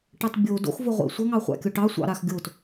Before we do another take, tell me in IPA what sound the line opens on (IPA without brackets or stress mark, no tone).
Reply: ʈ